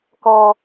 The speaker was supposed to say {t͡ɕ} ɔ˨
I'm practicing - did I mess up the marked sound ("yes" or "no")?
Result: yes